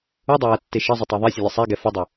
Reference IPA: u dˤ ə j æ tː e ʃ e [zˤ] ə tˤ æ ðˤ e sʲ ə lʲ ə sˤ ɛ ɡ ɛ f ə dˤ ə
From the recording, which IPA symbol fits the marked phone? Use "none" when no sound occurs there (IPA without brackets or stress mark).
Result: zˤ